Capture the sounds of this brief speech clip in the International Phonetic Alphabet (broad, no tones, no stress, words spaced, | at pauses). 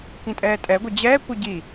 kĩtʼɛːtʼɛɡʷɯ d͡ʑɛːkʷɯ ɟi